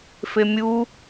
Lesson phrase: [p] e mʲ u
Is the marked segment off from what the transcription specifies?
yes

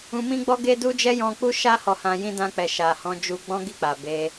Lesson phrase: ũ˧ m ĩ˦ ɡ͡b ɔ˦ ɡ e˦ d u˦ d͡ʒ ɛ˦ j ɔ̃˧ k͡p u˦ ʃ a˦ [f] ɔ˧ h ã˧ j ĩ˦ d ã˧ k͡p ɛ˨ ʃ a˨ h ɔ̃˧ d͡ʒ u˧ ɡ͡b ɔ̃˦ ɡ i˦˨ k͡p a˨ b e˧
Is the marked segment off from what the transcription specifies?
yes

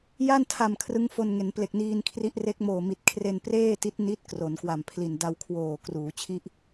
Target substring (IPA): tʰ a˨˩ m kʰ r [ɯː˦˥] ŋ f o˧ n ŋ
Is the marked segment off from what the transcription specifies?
yes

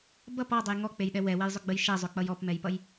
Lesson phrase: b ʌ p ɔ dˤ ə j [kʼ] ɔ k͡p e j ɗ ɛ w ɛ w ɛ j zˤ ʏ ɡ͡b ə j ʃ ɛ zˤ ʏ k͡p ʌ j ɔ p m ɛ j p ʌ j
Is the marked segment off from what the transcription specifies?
yes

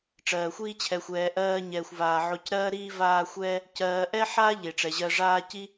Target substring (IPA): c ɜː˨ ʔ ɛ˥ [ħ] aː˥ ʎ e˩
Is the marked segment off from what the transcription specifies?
no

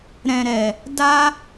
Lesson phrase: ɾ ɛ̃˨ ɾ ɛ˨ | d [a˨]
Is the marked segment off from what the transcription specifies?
yes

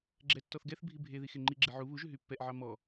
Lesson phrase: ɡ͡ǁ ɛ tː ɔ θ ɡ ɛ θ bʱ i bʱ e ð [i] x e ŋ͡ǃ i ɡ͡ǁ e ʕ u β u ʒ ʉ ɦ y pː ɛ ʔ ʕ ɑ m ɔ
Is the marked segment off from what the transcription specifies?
no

